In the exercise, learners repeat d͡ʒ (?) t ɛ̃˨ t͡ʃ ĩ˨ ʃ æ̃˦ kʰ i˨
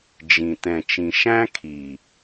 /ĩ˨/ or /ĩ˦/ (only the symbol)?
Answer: ĩ˨